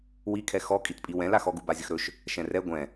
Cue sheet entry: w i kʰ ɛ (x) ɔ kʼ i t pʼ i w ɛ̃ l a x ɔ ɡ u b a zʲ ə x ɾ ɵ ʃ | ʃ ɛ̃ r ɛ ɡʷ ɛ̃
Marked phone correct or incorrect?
correct